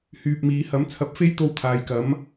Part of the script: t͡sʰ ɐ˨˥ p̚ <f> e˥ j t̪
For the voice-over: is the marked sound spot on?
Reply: yes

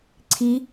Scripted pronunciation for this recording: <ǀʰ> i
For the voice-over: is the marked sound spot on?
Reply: yes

